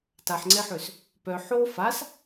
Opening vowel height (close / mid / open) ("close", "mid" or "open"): open